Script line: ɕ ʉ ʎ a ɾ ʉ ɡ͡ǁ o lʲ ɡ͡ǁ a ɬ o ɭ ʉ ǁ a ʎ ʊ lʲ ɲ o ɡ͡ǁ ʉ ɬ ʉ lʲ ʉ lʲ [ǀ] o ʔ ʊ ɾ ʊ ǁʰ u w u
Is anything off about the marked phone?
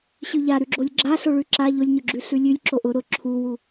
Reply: yes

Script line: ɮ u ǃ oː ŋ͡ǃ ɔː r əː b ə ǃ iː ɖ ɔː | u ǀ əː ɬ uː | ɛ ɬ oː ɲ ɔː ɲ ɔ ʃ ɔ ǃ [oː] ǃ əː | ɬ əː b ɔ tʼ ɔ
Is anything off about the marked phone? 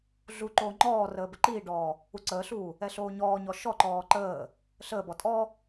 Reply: yes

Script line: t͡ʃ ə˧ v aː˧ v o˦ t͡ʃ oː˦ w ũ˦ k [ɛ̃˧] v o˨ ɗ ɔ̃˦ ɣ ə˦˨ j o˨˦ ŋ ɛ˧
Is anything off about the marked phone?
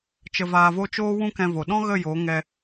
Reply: no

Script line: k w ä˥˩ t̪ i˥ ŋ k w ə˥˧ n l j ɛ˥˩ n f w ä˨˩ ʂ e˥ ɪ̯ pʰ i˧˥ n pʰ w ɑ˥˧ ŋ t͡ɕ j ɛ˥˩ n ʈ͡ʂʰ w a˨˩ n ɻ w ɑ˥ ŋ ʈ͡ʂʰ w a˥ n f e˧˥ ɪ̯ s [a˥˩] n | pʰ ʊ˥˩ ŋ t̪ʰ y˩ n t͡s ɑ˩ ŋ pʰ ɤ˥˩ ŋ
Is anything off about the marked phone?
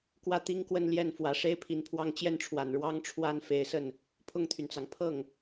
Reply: yes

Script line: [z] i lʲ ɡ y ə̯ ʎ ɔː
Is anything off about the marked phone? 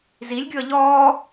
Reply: no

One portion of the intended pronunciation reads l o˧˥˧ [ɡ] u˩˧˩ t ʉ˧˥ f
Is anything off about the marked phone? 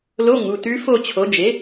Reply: yes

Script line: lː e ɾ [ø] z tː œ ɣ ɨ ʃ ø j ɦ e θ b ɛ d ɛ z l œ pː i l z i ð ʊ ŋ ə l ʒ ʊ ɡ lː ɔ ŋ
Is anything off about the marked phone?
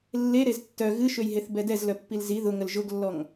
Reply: yes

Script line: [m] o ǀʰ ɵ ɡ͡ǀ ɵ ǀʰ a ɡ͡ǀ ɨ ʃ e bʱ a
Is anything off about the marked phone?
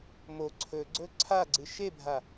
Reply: no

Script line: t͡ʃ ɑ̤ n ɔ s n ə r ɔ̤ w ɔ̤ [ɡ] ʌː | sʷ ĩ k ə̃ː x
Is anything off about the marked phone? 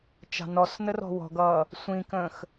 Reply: no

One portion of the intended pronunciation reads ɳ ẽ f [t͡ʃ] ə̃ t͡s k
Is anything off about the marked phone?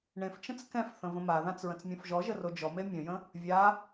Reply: no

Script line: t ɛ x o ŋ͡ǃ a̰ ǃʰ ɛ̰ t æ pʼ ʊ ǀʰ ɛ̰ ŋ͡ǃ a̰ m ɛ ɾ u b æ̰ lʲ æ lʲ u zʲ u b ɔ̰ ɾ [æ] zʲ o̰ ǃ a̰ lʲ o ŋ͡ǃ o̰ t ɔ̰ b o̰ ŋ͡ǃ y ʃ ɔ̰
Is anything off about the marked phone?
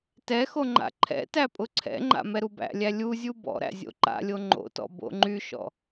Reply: yes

